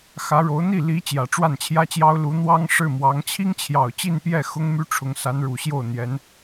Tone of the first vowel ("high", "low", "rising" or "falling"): rising